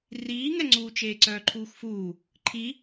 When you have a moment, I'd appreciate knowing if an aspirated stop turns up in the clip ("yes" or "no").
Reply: yes